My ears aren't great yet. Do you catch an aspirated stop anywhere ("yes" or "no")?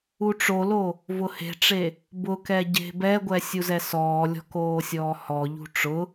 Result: no